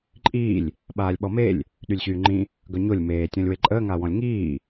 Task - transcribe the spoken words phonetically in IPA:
ǃʼ iː lʲ | ɓ aː lʲ ɓ ɔ m e lʲ | ɗ y lʲ ɕ yː ŋ͡ǃ ĩ | ɡ œ ɲ o lʲ m eː tʲ ɔ̃ lʲ w e ǃʼ əː ŋ a w ɔ̃ lʲ ŋ iː

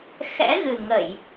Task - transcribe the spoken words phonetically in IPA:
x ɛ̰˧˥ ɣ ɨ˨˩ ŋ ə˧˩˨ j

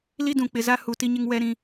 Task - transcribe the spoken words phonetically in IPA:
l i˦ d ũ˨ k͡p ɪ˨ z a˦ h u˨ t i˦ ɲ ɪ˦ ŋ w ɛ˦ ɾ ĩ˦

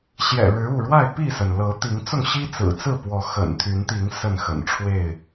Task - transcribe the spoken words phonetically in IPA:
ɕ j ɛ̰˨˩ ɻ ɻ̩˨˦ u˥˨ ɻ w a˥˨ ɪ̯ p i˥˨ s ə˩ n l ɤ˨˦ t̪ i˨˦ ŋ t͡s ʊ˥˨ ŋ ɕ i˦ t͡s ɹ̩˨˩ t͡s ɹ̩˥˨ p w ɔ˨˦ x ə̰˨˩ n t̪ʰ y˨˦ n t̪ i˨˦ ŋ s ə˥˨ n x ə̰˨˩ n ʈ͡ʂʰ w e˥˨ ɪ̯

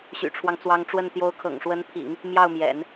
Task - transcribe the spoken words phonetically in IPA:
ɕ y̰˨˩ ʈ͡ʂʰ w ɑ˦ ŋ t͡s w ɑ˧˥ ŋ ʈ͡ʂ w ə˥˩ n t̪ j o˧˥ ʊ̯ kʰ ɤ̰˨˩ ŋ ʂ w ə˧˥ n pʰ ḭ˨˩˦ ŋ | m j ɑ˥˩ ʊ̯ m j ɛ̰˨˩˦ n

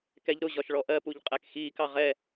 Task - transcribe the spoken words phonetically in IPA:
k ɛ ʎ ɾ ʊ ʑ ɒ ʃ ɭ ɔ ʔ ɜ p u ʎ qʼ æ k x iː k ɑ ʁ ɛ

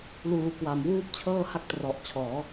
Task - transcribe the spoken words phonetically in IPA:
l uː˩˦ k w a˩˦ m w uː˥˩ p̚ t͡ɕʰ ɤː˥˩ h a˥˩ k̚ t r ɔ˨˩ ʔ t͡ɕʰ ɔː˩˦

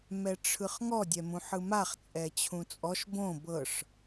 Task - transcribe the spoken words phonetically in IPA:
m ɛ ʈ͡ʂʰ ɯ χ ŋ ɔ dʲ ɛ m ũ ħ ɯ m a χ t͡sʼ ɛ t͡ɕʰ ũ t͡sʼ ɔ ʃ b õ b ɤ ʂ

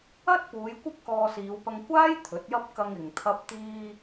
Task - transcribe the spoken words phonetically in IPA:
ɐ˥ t̚ p uː˨˧ j kʷ ɐ˥ p̚ k ɔː˧ s iː˨˧ w p ɐ˧ ŋ kʷ aː˥ j t̪ʰ ɵ˨˥ t̚ j ɐ˥ p̚ k ɐ˧ ŋ ɪ˨ ŋ t̪ʰ ɐ˧ p̚ t̪ iː˧

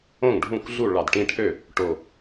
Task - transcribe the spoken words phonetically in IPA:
õ˥˩ ŋ ɖʱ ũ˥˩ kʷ ɮ u˥˩ ɭ ɑ˨˩ d ʈ ĩ˦ ʈʰ ø˥˩ | ʈ o˨˩

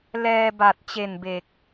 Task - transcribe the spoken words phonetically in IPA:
l ɛː˧ b a˨˩ t̚ t͡ɕ e˨˩ n b e˨˩ k̚

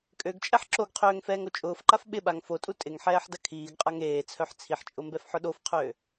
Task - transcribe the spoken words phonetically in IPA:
kʼ ø ɡ t͡ʃʼ ɛ ħ ǁ o ɡ qʰ øː ŋ f ɛː ŋ o t͡ʃʼ ʊː f ǃ a f ɓ ɪ ɓ a ŋ f o tʼ u tʼ ɪ ŋ ħ ɛː ħ d ɐ kʰ iː ɡ qʼ a ŋ eː t͡sʰ œ ħ t͡sʰ i ħ t͡ʃʼ ʊ m b ɛ f ħ ʊ ɗ o f qʰ øː

